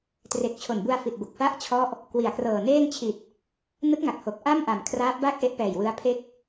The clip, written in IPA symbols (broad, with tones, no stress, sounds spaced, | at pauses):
t r e˨˩ k̚ t͡ɕʰ o˨˩ n b u˧ a̯ f i˨˩ t̚ b o˨˩ k̚ f a˥˩ ʔ t͡ɕʰ ɔ˦˥ ʔ | k w i˨˩ a̯ k r ɤː˨˩ n eː˥˩ ŋ t͡ɕʰ i˨˩ t̚ | n ɯ˦˥ k̚ ŋ a˨˩ k̚ h o˨˩ k̚ ʔ a˥˩ m ʔ a˨˩ m kʰ r aː˦˥ p̚ b a˥˩ k̚ ʔ e˦˥ ʔ p ɛː˨˩ j w ɯ˦˥ a̯ pʰ e˥˩ k̚